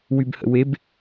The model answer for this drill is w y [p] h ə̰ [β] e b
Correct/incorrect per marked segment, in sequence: incorrect, incorrect

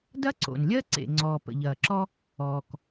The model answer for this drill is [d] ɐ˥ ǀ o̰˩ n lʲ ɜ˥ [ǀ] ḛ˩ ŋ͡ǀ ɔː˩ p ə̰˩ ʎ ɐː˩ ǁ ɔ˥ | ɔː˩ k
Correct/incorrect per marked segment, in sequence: correct, correct

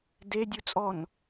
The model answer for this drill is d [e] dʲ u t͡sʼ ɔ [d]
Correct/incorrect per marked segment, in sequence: correct, incorrect

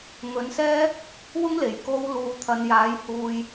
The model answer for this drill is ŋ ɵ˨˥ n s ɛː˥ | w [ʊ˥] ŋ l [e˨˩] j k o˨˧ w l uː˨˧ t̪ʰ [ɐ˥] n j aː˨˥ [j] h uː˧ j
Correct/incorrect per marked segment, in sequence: correct, correct, incorrect, correct

